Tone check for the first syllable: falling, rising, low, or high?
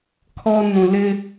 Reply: high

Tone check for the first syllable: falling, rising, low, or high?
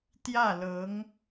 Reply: falling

